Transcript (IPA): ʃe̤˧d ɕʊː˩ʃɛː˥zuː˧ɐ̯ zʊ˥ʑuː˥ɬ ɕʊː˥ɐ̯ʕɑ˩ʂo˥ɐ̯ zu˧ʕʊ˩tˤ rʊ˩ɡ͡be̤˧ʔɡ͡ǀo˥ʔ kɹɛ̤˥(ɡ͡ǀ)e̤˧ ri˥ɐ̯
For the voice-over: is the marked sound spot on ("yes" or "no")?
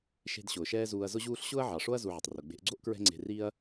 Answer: no